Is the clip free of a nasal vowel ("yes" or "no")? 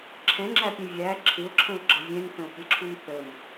no